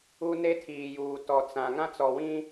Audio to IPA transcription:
u˦ n e˦ tʰ iː˨ j uː˨ t ɔ˨ t͡s ã˨ ŋ ã˦ t͡s ɔ˨ w ĩ˦

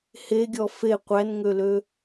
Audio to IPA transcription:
h e ɡʲ ɔ f e qʷ æ n ŋ ø l ø

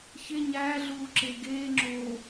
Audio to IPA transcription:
ç e ɲ æː ɮ uː ǁ e ɡ eː ŋ͡ǁ oː

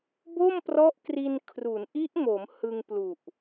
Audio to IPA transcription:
b o˥˩ m p r ɔ˦˥ ʔ k r i˧ n kʰ r u˩˦ n ʔ i˦˥ ʔ m o˩˦ m h ɯ˧ ŋ p l u˨˩ ʔ

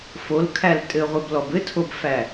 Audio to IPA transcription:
f o l kʰ æ l tʼ ɘ ʁʷ ɘ b l ɔ b ɘ tʰ o b f æ

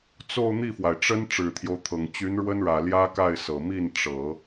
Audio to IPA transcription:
t͡s o˥˧ ʊ̯ n̪ i˥˩ f w a˩ ɪ̯ ʈ͡ʂ ə˥ n ʈ͡ʂ ɻ̩˨˩ t̪ʰ j o˦ ʊ̯ t̪ʰ ɤ˨˩ ŋ t͡ɕ y˧˥ n ɻ w ə˥ n ɻ ä˨˩ l j ä˥ k a˥˩ ɪ̯ s ɤ˨˩ m i˥˩ n ʈ͡ʂ ɤ˨˩˦

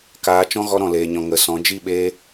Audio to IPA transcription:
k aː˧ t͡ʃ ɔ̃˦ ɣ ɔ˧ ɾ ɔ̃˨ l eː˨ ɲ ɔ̃˨ ŋ ə˨˦ s ɔ̃˨˦ d͡ʒ i˦˨ ɓ eː˧

